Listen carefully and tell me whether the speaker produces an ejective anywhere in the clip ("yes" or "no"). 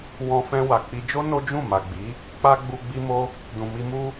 no